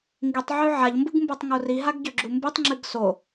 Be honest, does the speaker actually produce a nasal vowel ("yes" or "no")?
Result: no